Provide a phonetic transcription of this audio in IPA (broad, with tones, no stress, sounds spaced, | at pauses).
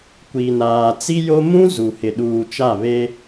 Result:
kʷ i˨ n aː˨ t͡s i˦ j o˦ m ũ˦ z u˨ h ɪ˨ ɗ uː˨ t͡ʃ a˦˨ β e˦